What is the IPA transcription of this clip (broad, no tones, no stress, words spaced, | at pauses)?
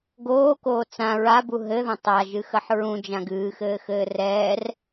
ɡoːkoː t͡sã ɹabu ɦɘðɐ̃ tˤaʒɨxɐħ ɹũd͡ʒãɡ ɨːxɘːxɘː rɛːr